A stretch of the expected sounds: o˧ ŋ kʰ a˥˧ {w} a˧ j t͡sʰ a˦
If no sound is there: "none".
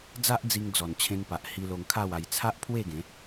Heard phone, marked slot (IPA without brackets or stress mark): w